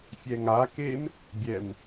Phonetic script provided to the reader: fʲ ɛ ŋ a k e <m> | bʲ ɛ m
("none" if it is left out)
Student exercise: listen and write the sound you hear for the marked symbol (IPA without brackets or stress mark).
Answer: m